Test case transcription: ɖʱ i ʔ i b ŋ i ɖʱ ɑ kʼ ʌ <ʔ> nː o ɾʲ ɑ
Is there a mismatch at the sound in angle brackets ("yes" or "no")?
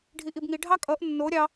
no